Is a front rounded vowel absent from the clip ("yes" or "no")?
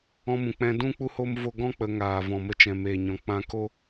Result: yes